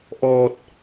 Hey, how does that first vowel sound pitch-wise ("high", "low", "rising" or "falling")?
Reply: low